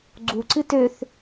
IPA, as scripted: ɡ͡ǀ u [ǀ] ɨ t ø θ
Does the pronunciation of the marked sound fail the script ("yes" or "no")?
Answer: no